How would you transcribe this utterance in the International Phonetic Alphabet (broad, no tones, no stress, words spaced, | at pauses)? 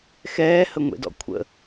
xɛːhəŋʷḛdɔ̰ kʷʰə̰